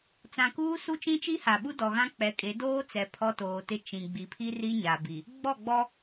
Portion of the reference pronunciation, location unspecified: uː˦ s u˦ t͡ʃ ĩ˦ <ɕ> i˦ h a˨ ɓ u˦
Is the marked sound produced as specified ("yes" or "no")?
no